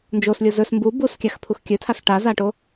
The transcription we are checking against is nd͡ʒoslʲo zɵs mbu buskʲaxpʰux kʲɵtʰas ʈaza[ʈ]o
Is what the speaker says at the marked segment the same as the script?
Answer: yes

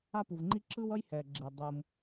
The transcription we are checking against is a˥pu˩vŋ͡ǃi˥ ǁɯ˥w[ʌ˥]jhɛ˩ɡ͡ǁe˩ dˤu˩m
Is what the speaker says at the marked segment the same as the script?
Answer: yes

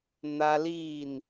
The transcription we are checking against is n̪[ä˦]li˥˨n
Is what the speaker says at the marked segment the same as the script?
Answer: yes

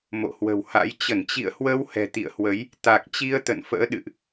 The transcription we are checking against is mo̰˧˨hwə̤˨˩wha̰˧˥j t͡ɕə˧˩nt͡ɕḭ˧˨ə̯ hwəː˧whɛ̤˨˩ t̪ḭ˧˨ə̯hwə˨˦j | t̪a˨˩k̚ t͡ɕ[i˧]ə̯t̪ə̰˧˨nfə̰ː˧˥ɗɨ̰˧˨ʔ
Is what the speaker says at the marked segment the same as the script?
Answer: yes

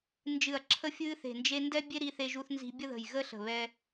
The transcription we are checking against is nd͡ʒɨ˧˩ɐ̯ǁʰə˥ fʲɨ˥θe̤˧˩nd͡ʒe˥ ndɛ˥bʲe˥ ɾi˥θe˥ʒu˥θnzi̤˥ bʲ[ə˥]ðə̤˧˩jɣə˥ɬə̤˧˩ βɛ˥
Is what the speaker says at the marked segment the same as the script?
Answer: yes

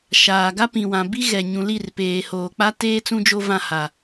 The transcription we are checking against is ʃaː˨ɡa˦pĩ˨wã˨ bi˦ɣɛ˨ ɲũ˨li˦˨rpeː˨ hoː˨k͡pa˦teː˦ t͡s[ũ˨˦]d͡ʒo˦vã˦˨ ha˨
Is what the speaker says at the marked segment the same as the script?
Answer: no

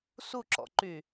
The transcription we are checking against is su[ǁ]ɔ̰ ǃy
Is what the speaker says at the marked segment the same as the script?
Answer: yes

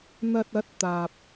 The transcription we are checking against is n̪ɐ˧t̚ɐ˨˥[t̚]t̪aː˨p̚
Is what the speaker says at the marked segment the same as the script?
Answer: yes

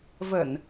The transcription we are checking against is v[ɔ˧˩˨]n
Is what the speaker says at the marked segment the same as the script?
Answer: no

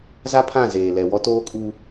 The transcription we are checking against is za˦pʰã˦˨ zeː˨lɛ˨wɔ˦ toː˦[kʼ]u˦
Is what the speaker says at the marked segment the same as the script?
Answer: yes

